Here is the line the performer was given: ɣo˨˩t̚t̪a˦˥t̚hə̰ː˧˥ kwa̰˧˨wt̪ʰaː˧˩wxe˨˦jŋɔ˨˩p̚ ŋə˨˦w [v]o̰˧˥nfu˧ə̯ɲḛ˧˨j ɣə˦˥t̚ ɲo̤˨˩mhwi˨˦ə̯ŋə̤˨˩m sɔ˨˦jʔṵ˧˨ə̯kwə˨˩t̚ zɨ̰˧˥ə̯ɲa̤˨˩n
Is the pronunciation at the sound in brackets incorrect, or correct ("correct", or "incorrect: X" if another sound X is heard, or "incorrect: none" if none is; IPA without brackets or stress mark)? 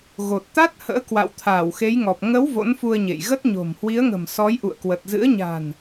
correct